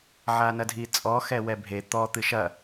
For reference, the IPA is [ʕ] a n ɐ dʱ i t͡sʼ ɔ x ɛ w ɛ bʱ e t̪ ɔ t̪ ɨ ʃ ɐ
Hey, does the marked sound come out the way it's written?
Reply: yes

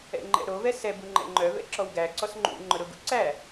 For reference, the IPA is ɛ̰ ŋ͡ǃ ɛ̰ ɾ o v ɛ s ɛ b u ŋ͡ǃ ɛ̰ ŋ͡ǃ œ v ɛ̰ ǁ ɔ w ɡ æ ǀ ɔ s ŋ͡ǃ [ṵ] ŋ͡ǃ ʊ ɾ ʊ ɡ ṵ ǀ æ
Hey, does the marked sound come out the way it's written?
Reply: yes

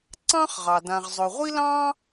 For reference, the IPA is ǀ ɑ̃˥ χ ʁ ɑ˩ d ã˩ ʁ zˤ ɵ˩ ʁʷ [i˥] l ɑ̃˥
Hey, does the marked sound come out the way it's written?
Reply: yes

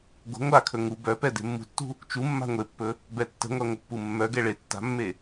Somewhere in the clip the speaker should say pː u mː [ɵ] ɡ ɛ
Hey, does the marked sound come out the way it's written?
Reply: no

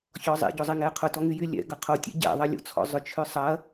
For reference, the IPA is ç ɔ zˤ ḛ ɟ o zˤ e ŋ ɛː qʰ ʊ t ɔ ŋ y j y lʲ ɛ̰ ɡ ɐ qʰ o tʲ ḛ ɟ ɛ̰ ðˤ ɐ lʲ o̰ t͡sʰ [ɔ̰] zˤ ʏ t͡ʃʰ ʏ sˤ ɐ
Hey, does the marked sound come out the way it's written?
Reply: yes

